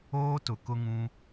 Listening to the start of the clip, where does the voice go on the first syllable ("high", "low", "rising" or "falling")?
high